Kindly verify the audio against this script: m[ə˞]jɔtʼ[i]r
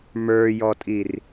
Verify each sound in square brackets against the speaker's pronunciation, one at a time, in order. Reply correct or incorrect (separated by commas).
correct, correct